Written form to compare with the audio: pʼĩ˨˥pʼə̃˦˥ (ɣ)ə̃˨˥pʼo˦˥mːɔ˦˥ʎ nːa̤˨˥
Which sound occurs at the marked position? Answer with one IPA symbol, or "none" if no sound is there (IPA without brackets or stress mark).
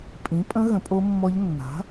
ɣ